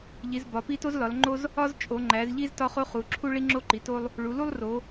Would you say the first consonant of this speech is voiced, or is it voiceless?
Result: voiced